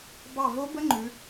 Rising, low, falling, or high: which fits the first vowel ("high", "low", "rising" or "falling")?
falling